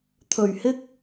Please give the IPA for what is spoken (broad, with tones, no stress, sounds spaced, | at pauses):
t̪ʰ ɵ˨˩ ɥ h ɪ˥ k̚